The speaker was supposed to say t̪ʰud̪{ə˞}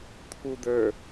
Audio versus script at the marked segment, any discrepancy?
no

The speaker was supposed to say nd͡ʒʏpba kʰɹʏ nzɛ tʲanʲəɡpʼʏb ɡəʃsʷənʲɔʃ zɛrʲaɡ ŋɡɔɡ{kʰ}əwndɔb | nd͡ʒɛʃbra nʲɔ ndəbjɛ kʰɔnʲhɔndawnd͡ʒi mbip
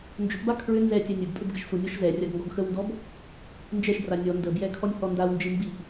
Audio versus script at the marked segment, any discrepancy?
yes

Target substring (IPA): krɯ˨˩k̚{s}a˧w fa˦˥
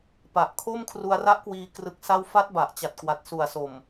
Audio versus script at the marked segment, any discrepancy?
no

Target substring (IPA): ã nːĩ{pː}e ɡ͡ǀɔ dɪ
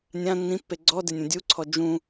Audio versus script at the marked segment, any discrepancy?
no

